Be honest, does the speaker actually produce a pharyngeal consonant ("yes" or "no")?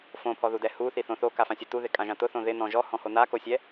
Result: no